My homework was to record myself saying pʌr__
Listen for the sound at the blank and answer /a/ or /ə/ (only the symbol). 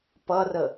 ə